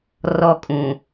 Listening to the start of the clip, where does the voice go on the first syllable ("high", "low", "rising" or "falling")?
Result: falling